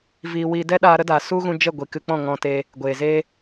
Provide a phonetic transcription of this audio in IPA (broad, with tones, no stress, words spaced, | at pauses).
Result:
viː˨wiː˨ dɛ˦ɗaː˧ ɾə˦daː˨ su˦ɣũ˧ d͡ʒə˦˨ɡʷi˨kɨ˧k͡pɔ̃˦˨ ŋɔ̃˧te˧ | ɡʷeː˨zeː˧